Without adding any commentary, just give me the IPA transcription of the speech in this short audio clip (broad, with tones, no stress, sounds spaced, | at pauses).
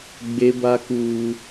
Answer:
ɡ͡b e˦ b a˦ k uː˦